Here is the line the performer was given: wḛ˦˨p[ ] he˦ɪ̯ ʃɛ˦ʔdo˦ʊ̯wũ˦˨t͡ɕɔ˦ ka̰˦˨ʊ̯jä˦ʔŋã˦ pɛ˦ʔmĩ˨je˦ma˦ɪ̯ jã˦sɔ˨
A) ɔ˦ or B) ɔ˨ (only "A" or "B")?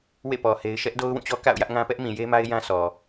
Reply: B